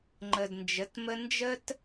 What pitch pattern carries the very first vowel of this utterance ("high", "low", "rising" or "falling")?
low